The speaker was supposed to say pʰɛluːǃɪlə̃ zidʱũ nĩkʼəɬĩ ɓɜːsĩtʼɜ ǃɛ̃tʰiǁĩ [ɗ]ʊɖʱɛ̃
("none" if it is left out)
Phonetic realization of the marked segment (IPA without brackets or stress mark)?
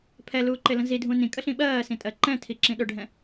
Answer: ɗ